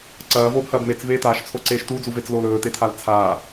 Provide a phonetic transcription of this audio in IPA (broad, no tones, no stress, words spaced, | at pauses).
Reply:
ǀɐːvoːbhɐːb met͡sveː taːʃt͡sʰoǀeːʃ tud͡zuvet͡sloːl ɵːtetʰal t͡sʰaː